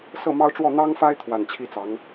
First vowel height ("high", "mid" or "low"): mid